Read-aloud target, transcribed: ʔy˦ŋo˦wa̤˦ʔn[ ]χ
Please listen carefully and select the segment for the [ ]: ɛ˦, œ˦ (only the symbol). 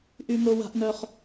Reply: œ˦